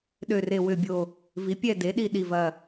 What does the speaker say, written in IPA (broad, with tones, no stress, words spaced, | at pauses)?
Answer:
ɗø˥˧re˥˧ wʏ˥˧bʲo˥˧ | vi˨˥pʲɛ˥˧ de˨˥ɗi˥˧ ɗi˥˧vɐ˥˧